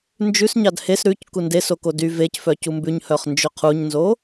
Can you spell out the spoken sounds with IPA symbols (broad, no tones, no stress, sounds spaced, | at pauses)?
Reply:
n d͡ʒ ʉ s ɲ ɑ d h e s ɾ ʉ c k u n d e s o k o d y v e c f œ c u m b ʉ ɲ h œ χ n d͡ʒ ø qʰ u ɲ n z o